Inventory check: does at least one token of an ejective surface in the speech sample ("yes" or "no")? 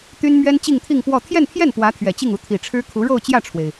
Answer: no